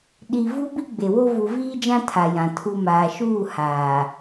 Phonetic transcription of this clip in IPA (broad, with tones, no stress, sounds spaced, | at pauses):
ɗ i˨ v u˦ b i˦ ɡ͡b e˨ w o˦ v u˨ v iː˦ d͡ʒ ã˦ tʰ a˨ j ã˨ tʰ u˨ m aː˨ ʃ uː˦˨ h aː˨